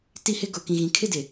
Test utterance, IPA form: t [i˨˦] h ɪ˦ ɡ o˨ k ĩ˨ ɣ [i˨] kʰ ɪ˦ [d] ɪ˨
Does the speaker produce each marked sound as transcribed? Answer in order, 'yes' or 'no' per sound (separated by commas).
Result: no, no, yes